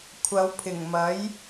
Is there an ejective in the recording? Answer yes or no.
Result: no